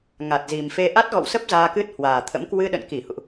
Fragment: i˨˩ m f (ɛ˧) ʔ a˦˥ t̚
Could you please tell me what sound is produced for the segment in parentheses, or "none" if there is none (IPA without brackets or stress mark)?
e˧